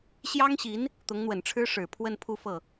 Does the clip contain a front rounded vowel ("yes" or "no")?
no